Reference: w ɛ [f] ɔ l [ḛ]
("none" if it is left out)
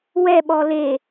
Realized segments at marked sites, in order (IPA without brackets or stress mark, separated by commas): ɓ, e